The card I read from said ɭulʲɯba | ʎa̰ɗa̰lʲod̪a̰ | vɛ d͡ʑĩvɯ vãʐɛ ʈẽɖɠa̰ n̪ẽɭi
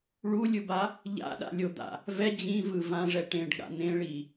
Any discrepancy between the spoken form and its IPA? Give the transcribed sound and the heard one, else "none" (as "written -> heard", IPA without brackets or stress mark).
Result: none